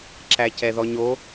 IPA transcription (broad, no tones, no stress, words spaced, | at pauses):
ǁæcɛðɔɲo